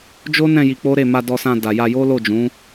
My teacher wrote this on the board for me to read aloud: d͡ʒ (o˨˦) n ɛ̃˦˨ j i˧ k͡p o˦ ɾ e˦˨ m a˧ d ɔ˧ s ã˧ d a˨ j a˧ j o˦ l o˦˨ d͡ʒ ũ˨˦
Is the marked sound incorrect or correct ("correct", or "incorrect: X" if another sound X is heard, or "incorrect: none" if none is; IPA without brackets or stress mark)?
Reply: incorrect: o˦